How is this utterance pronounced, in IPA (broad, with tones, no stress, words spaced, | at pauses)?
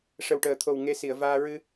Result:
ʂə˨˩wʈəː˨˩t̪ʰo˨˩w ŋe˧si˨˩˨ə̯vaː˧ ɹɨ˧